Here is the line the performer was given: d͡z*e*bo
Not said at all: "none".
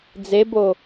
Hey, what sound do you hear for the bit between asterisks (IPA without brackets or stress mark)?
e